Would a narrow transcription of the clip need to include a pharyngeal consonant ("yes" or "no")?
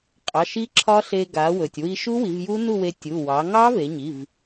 no